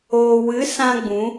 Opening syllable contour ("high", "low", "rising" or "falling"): low